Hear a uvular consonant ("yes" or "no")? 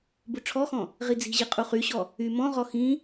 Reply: yes